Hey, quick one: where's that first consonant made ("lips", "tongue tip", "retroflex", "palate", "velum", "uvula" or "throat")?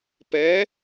lips